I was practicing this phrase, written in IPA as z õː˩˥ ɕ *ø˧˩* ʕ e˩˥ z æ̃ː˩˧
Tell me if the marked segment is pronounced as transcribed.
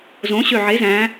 yes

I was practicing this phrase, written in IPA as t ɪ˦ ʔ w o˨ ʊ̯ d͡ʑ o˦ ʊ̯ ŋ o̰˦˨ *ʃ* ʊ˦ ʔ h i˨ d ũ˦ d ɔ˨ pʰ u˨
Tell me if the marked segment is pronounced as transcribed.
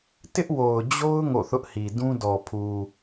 no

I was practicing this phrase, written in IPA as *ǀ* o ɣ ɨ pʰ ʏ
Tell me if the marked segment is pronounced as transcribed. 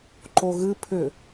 no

